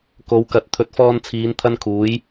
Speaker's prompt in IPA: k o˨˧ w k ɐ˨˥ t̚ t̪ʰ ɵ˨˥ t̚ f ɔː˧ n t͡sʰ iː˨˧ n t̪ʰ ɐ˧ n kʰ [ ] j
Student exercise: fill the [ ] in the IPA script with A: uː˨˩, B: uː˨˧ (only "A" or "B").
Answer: B